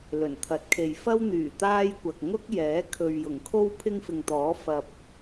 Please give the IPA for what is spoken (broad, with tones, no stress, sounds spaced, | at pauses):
l ɵ˨˩ n t̪ʰ ɐ˨˥ t̚ kʰ e˨ j f ɐ˥ w n̪ yː˨˩ t̪ aː˥ j kʷ ɐ˨ k̚ ŋ ʊ˥ k̚ j ɛː˨˥ kʰ ɵ˨ ɥ j ʊ˨˩ ŋ kʰ o˥ w pʰ ɪ˥ ŋ f ɪ˨ ŋ t̪ ɔː˨˥ f ɐ˨ p̚